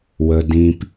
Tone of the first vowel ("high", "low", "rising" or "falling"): low